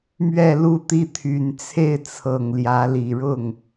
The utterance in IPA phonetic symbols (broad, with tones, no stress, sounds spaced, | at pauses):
m ɥ ɛ˥˧ l u˥˧ t̪ i˥˩ t̪ʰ y˨˩ n t͡sʰ e˥˩ ɪ̯ t͡sʰ ɤ˨˩ ŋ l j ä˧˥ l i˨˩ ɻ ʊ˥˩ ŋ